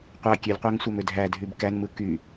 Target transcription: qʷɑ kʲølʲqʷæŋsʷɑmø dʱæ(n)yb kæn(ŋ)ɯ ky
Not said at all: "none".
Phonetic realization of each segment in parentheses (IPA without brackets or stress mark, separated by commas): dʱ, m